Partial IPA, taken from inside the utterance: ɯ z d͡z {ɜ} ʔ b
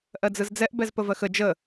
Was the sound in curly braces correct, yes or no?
no